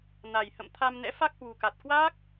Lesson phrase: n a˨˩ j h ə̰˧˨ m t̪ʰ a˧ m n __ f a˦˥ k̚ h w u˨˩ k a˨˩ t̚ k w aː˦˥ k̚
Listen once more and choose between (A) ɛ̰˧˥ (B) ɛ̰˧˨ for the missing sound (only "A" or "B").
A